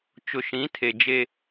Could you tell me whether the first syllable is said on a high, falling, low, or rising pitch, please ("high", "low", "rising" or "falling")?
low